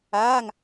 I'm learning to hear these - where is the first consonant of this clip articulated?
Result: velum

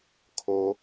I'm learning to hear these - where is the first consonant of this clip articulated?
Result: velum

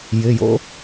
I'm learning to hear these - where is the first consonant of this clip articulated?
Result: palate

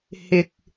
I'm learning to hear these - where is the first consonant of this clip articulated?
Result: throat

